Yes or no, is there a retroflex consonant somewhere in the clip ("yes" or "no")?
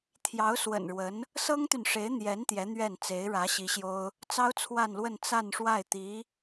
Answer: yes